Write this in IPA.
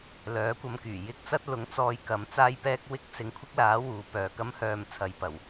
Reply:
l œː˨˥ kʷ ɐ˧ m k yː˨˩ j ɪ˧ k̚ t͡s ɐ˥ t̚ l ʊ˨˥ ŋ t͡s ɔː˧ j k ɐ˨˥ m t͡s aː˥ j p ɛː˥ k̚ w ɪ˥ k̚ s ɪ˨ ŋ kʷʰ ɪ˥ k̚ l aː˨˥ w uː˧ p œː˧ k ɐ˥ m h œː˧ m t͡sʰ ɐ˨ j p ɐ˨˩ w

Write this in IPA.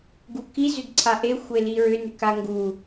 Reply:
ɡ u k i z ʏ d ǀʰ a ʔ e xʷ e l i ɹ ʏ n ʏ k a ŋ ɡ u

